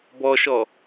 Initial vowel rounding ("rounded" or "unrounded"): rounded